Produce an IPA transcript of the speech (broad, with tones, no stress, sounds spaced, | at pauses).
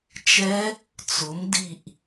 t͡ʃ ɛ˦˥ | t͡s ʊ˨˦ m d i˦˨ ʔ